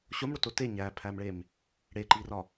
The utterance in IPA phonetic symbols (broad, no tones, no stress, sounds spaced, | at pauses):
ɕ o m ɽ o t o t e ɲ æ pʰ æ m ɭ e m | ɽ e ǃ i r ɒ